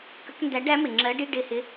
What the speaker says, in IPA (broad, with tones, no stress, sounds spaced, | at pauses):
k ə˧˥ k n d æ˧˥ ɖ æ˧˥ m ɪ˨˩ ŋ͡ǁ ɜ˧˥ ɖ i˧˥˧ ɖ ɪ˦˨ h ɪ˧˥